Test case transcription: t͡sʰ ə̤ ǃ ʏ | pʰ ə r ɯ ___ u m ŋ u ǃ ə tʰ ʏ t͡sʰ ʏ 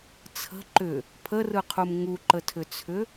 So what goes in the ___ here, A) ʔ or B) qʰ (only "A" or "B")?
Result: B